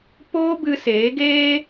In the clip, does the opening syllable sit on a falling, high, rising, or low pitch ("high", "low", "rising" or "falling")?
high